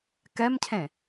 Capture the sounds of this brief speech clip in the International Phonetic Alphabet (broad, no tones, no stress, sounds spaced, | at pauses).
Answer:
k ɛ m cʰ ẽ